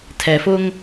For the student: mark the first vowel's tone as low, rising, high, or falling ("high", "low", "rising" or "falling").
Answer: low